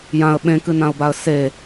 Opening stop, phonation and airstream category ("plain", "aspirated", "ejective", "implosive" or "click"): implosive